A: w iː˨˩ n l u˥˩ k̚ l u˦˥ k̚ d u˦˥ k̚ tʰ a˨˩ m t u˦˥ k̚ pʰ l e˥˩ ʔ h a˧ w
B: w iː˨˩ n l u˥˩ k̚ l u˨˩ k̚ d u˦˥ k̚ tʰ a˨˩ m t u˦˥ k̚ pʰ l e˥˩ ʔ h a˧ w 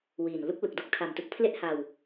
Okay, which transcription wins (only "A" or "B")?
B